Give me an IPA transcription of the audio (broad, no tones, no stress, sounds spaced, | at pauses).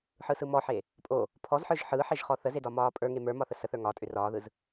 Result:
ħ ɯ s ɯ m ɔ ħ e | pʼ o | pʰ ɔ z ħ ə˞ ʒ ħ ɯ ħ e ʒ χ ɔ θ ə z e d ɒ m ɒː pʼ ə˞ ŋ e m ə˞ m ɒ θ ə s ə θ ə˞ ŋ ɒ tʼ ʏ r ɒː ð ɯ z